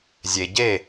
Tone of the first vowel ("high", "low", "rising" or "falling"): low